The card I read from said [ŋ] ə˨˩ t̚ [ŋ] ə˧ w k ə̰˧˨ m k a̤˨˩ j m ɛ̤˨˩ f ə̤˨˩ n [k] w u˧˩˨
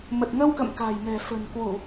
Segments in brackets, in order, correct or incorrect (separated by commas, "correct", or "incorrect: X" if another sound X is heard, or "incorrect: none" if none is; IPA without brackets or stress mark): incorrect: m, correct, correct